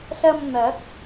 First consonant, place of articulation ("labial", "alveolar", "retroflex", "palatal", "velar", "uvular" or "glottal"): alveolar